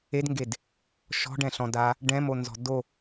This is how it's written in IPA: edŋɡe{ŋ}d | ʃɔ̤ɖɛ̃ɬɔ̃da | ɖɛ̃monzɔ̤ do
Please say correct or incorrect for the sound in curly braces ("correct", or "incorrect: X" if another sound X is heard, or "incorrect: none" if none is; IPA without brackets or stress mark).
incorrect: none